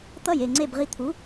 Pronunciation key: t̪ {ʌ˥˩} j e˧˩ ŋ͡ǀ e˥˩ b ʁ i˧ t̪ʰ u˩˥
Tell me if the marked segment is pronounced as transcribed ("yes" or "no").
yes